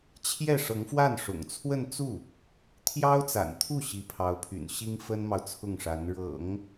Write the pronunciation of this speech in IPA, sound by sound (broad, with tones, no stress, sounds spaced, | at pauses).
t͡ɕʰ j ɛ˥˩ ʂ ɤ˧˥ ŋ f w a˥˩ n ʂ ʊ̰˨˩ ŋ t͡sʰ w ə˥˧ n t͡s u˥˩ | t̪ʰ j ɑ˥ ʊ̯ t͡s a̰˨˩ n t̪ʰ u˥˩ ɕ i˧˥ pʰ ɑ˧˥ ʊ̯ pʰ y̰˨˩ n ɕ i˥ ŋ f ə˥ n m ɑ˨ ʊ̯ t͡sʰ ʊ˥˩ ŋ ʂ a˧˥ n ɻ ɤ̰˨˩˦ ŋ